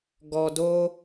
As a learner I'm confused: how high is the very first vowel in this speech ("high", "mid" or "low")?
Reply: mid